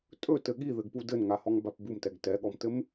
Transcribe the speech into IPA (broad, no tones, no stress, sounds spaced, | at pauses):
tʼ ɵ t ɘ ɠ i ð ɘ ɡ p u d ɘ n ŋ a h ɔ ŋ b a p b u m t ɛ ɡ t ɛ ɠ ɔ m t ɘ m